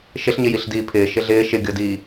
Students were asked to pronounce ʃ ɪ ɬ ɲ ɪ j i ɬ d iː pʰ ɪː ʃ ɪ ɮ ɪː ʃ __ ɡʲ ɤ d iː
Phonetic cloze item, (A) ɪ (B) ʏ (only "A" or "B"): A